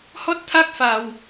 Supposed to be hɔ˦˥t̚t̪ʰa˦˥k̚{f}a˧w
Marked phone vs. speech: correct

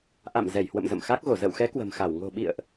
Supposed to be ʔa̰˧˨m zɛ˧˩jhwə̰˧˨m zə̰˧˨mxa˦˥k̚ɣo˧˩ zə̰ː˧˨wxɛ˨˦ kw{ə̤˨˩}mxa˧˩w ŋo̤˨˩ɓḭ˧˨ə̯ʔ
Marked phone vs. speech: correct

